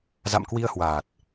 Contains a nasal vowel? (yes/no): no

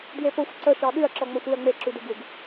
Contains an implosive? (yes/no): yes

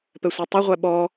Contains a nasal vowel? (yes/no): no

